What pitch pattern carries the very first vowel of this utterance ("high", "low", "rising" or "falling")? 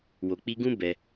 low